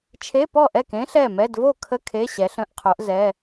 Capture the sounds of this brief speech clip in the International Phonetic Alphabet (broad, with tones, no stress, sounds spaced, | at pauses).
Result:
t͡ʃʰ e˧˥˧ p ɔ˥˩ ʔ ɛ˥˩ k ẽ˦˥ ɬ ɛ˥˩ m ɛ˧˥˧ d v o˥˩ kʰ ə˧˥˧ kʰ e˧˥˧ ɕ ɛ˨˦ ɬ ə̃˧˥˧ ʔ qʰ o˨˦ ʔ z ɛ˩˧˩